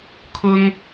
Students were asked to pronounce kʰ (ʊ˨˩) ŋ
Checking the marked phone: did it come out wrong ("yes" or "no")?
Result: yes